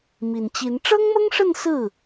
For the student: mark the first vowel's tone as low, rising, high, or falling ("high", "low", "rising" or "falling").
low